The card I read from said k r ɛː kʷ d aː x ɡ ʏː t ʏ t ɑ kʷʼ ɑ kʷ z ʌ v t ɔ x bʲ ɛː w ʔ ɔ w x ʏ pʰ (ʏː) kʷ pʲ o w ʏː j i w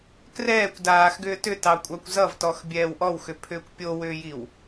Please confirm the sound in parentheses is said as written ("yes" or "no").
yes